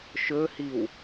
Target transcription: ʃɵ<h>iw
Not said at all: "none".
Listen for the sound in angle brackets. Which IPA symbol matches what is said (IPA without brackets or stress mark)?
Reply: h